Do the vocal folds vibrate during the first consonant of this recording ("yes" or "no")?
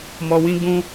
yes